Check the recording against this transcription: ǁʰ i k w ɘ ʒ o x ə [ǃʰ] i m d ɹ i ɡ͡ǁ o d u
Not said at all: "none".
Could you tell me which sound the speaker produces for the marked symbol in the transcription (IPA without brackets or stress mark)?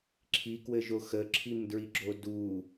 ǁʰ